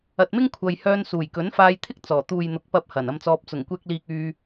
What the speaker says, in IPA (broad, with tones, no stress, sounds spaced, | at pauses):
ɐ˨ t̚ m ɪ˥ ŋ kʷʰ ɐ˨ j h œː˧ n s uː˨˩ j k ɵ˨˥ n f aː˧ j t̪ʰ ɪ˥ k̚ t͡s ɔː˨˩ t̪ uː˨ j n̪ ʊ˨˥ k̚ p ɐ˧ p̚ h ɐ˨˩ n ɐ˧ m t͡s ɔː˧ p̚ t͡s ʊ˨˩ ŋ kʷ ɛː˧ k̚ l iː˧ k̚ yː˧